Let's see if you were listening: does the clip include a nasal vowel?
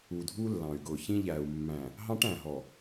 yes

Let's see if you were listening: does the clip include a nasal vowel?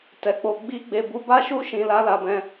yes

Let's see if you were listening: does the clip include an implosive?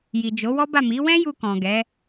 no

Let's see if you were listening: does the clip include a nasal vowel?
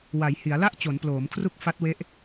no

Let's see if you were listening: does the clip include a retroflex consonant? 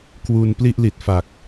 no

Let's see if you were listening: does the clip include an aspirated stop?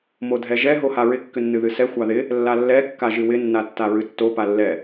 no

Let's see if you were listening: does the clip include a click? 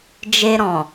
no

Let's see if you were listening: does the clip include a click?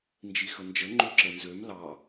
yes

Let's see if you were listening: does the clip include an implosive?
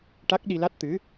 yes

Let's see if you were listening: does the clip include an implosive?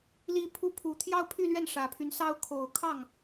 no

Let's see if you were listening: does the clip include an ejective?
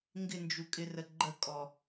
yes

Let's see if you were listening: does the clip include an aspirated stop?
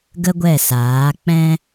no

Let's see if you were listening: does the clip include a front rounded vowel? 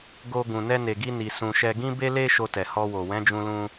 no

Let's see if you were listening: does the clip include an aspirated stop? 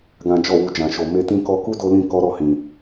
no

